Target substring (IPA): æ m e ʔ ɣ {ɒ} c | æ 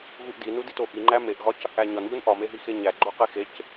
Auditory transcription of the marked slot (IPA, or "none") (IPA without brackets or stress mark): ɒ